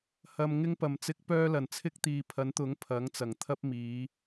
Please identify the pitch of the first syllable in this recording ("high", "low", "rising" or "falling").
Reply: low